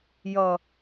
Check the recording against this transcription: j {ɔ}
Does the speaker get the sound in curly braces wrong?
yes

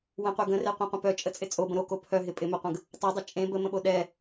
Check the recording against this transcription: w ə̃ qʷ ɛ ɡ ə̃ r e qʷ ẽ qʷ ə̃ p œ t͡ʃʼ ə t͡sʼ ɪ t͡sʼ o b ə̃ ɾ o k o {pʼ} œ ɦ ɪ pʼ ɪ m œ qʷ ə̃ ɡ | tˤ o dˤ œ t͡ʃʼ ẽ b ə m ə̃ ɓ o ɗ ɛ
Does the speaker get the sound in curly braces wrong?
yes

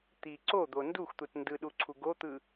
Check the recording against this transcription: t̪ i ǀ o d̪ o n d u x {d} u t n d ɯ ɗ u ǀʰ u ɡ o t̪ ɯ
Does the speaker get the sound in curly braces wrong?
yes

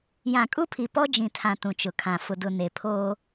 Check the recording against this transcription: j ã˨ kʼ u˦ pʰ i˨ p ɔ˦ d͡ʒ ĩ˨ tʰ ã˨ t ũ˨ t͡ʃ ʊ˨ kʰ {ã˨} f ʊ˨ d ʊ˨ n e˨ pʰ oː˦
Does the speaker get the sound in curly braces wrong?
no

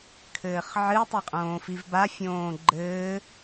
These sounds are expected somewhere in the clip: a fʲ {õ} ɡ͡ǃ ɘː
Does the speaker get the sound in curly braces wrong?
yes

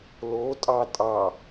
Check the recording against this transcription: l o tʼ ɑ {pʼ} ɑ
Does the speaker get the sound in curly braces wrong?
yes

